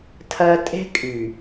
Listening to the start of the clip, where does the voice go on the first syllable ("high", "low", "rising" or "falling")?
high